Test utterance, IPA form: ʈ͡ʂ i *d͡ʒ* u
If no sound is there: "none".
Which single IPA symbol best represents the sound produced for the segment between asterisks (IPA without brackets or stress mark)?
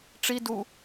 d